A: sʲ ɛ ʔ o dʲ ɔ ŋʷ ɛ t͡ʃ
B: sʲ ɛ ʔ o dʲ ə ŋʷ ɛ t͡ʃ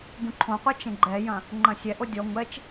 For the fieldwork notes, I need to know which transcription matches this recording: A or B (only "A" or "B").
A